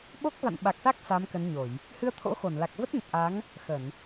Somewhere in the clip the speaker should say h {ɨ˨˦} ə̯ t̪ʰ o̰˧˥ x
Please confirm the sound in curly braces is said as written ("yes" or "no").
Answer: no